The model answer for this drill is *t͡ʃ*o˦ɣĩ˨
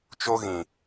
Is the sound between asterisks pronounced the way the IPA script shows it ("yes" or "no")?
yes